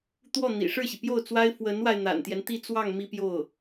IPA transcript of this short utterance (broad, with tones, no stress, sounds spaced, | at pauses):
t̪ w ɔ˥˩ n̪ ḭ˨˩ ʂ ɻ̩˥˩ ɕ i˩ p j o˥˩ ʊ̯ t͡s w a˥ ɪ̯ f w ə˧˥ n w a˧ ɪ̯ n̪ a̰˨˩ n t̪ j ɛ˦ n t̪ i˥˧ t͡s w ɑ˥˩ ŋ m i˥ p j o˥˩ ʊ̯